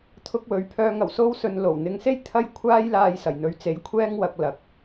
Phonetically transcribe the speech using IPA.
t̪ʰ ʊ˧ k̚ w ɵ˨˥ ɥ pʰ œː˧ ŋ ɐ˨˩ w s o˥ w s ɵ˧ n l o˨˩ w n̪ ɪ˨˧ ŋ s e˥ j t̪ʰ ɐ˥ j kʷʰ aː˥ j l aː˧ j s ɐ˨˩ j n̪ ɵ˨˥ ɥ t͡s e˨˥ j kʷʰ ɛː˥ ŋ w ɐ˧ k̚ l ɐ˨ k̚

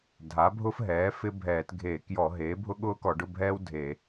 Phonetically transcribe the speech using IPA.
dʱ a˩˥ bʱ ʊ˥ f ɦ ɛː˩˥ f ɪ˥ bʱ ɛː˧˩˧ t ɡʱ e˧˩˧ k j ɔ˧˩˧ ɦ eː˩˥ bʱ ʊ˥ ɠ ʊː˥ k ɔ˧˩˧ ɖ ʊ˧˥˧ bʱ ɛː˥ w dʱ e˧˩˧

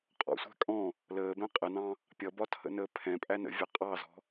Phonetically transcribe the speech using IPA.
qʼ ɔ̰ sʷ æ̤ kʼ ɔ̃ | l əː b ɛ̃ qʼ ə n ɑ̃ | pʲ ʌ b ɒ tʰ ə̰ n əː pʰ ɛ̃ pʼ æ n ə̰ vʲ ɑ qʼ ɑ z ɔ̤

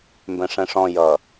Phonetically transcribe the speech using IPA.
m b ɛ̃ ʂ ɛ̃ ʂ ɔ̃ j ʌ

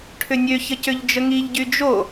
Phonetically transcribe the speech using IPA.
ʈʰ ʏ nʲ ø ç ə c ʏ ʎ d͡ʒ ə ŋ i ʎ ɟ y d͡ʒ o

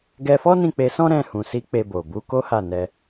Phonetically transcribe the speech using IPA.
ɡ ɛ˧ f ɔ˦ n ĩ˦˨ k͡p e˧ s ɔ̃˦ ɾ ɛ̃˦˨ h ũ˨ s i˨˦ k͡p e˧ b o˨ b u˨˦ k o˦ h a˦˨ n ɛ˧

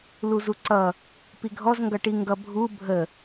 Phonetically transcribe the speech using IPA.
l u z u ǀ ʌ | p i ɡʱ ɔ z ŋ ɡ ʌ ʈ i ŋ ɡ ʌ bʱ u bʱ ə

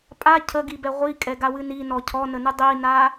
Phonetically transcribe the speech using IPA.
pʼ a cʰ ə ɡ i b ɛ ʁʷ i kʼ ɛ ɡ a w ɨ n i n ɔ cʰ ɔ n ə n ɨ dˤ i n a

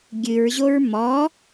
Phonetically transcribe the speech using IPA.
ɡʲ ɨ ɹ ʑ o ɹ m ɔ

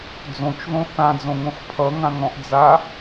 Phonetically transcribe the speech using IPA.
d͡z õ t͡ʃ ð õ θ ã d͡z õ ŋ õ x pʰ ʌ ŋ ã ŋ ɔ̃ ʔ d͡z a

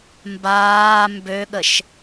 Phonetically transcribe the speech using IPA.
m b aː m b ø ɠ ə ʃ

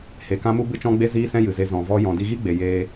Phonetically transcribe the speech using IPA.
h e˨ k ã˦ m u˦ b ɨ˦ t͡ʃ ɔ̃˦ ɡ͡b e˦ z iː˦ s ɛ̃˦ j ɨ˨ z e˧ z ɔ̃˨ v ɔ˧ j ɔ̃˨ d i˧ ɣ i˦ ɡ͡b e˨ j eː˧

